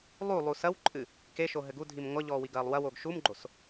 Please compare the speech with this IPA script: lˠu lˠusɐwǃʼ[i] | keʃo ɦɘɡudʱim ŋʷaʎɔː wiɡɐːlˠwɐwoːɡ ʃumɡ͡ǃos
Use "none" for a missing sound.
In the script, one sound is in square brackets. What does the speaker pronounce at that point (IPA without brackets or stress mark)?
ɨ